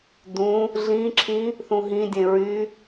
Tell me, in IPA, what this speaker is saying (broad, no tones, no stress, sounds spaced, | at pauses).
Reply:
d ũ | ɮ ĩ ǁʰ ĩ | θ ũ ɦ ĩ dʲ ẽ ɹ y